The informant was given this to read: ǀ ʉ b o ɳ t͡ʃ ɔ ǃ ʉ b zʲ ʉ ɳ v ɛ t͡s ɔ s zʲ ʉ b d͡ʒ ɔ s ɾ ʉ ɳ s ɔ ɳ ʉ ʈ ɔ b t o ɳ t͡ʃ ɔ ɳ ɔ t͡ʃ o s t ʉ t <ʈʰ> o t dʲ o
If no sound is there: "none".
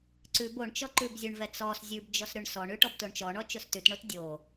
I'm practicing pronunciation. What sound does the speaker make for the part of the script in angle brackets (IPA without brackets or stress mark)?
ɳ